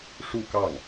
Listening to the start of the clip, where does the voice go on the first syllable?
falling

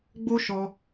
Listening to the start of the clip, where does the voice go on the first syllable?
high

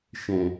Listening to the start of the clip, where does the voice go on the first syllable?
low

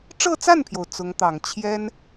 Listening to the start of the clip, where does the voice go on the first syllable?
falling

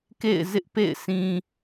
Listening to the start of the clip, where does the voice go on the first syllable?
falling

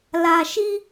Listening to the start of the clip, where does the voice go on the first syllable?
low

